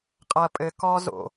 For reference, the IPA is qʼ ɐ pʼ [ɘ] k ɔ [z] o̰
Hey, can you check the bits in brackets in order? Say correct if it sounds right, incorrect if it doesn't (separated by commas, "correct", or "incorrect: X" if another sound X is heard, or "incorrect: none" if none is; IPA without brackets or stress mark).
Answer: correct, correct